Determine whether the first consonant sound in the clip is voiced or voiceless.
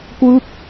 voiceless